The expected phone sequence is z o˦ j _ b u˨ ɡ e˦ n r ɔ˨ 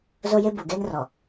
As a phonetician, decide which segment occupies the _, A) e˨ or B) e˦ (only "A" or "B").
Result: B